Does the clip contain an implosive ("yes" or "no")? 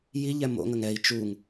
no